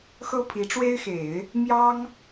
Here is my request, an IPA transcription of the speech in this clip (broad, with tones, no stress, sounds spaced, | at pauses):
x ɤ˥ pʰ i˧˥ ʈ͡ʂ w e˥ ɪ̯ x e˨˩˦ ɪ̯ | m j ɑ˥ ŋ